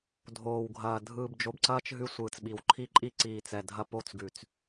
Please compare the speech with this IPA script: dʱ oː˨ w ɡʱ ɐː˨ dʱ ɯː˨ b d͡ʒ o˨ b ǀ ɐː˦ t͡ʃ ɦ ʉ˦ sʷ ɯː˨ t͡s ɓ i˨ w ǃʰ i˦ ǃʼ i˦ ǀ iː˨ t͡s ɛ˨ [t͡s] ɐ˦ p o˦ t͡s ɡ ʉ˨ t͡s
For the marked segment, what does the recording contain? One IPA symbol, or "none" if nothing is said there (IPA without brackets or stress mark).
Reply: dʱ